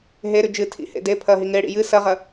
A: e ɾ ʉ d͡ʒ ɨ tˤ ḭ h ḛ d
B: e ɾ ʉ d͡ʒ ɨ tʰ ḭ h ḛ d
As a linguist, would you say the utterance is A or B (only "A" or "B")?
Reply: B